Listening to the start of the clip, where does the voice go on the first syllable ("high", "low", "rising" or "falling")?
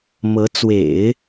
rising